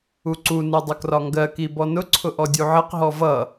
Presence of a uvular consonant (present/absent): present